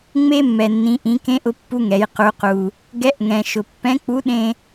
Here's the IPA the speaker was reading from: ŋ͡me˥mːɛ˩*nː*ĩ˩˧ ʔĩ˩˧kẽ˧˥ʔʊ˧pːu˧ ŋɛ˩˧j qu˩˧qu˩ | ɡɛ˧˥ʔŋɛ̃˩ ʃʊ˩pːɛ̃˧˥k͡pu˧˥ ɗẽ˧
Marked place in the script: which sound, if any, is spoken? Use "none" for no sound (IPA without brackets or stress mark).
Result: nː